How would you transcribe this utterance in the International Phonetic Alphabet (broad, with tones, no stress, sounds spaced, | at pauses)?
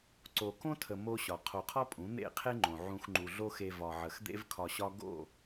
ǀ o˨ k õ˦ tʰ ə˨ m o˦ ɕ ɒ˨ qʰ o˨ qʰ ɒ˦ pʼ ũ˨˦ n̪ ḛ˦˨ qʰ e˦ ŋ͡ǃ õ˨ ʕ ũ˧ x ŋ͡ǃ u˨ ɮ o˦ x e˧ v ɒ˨ ʕ ə˨ x d̪ ḛ˦ v kʰ ɒ˧ ɕ ɒ˦ ɡ o̰˦˨